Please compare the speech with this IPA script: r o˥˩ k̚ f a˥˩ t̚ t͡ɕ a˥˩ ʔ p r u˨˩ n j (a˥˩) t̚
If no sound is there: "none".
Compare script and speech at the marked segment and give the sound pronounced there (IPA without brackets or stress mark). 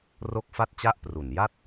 a˥˩